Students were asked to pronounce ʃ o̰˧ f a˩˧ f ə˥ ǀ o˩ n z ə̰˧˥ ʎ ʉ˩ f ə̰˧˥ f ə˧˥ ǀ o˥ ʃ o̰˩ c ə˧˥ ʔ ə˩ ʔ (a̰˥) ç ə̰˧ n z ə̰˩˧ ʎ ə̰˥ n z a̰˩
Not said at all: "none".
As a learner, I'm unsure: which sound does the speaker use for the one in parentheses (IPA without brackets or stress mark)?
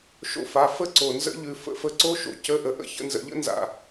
ə̰˥